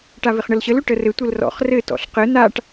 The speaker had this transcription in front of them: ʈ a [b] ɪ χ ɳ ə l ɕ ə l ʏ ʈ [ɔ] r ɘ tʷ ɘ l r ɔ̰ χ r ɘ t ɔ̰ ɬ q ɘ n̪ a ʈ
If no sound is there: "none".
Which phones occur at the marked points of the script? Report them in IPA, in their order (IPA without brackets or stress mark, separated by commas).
v, ə